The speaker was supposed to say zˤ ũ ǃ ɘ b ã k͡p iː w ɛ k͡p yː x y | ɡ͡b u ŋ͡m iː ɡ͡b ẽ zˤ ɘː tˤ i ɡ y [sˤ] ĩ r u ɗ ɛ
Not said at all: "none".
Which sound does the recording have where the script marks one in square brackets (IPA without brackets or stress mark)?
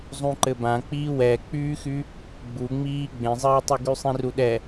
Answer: sˤ